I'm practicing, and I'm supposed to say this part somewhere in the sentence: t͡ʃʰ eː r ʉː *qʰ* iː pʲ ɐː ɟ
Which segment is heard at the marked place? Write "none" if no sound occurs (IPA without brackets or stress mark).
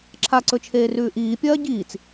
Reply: ʔ